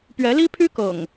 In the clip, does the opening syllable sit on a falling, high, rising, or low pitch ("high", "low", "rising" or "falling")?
rising